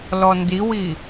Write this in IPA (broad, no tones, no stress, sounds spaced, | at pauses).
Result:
l ɔ n d i w i